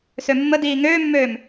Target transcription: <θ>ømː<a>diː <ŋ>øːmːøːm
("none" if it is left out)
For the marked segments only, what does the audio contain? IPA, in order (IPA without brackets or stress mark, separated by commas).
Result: s, ə, ŋ